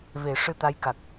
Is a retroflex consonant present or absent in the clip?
present